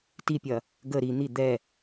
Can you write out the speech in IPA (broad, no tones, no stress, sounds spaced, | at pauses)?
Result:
t i pʲ ɐ | ɡ ə ɾ i n̪ i d̪ ɛ